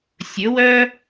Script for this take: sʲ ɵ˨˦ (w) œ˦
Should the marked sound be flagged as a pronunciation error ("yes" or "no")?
no